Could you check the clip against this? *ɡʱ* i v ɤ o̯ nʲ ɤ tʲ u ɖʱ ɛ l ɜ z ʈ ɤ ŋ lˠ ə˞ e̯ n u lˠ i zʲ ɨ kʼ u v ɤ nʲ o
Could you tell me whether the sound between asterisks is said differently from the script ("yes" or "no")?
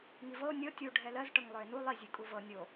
yes